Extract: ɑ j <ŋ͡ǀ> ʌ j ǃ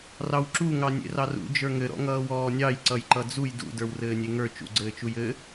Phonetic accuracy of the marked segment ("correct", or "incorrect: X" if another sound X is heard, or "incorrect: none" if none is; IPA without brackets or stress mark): incorrect: ǀ